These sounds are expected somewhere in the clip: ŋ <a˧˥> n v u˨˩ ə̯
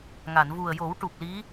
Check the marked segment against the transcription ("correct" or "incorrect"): incorrect